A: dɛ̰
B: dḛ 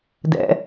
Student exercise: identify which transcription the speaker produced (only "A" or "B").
A